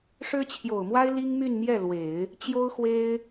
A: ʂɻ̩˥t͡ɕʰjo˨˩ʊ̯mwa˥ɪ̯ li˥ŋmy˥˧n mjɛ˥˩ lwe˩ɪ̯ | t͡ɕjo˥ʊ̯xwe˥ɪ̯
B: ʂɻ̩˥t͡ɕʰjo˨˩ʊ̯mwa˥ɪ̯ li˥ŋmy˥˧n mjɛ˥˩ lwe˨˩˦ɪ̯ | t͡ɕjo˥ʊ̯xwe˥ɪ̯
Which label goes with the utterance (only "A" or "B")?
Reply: B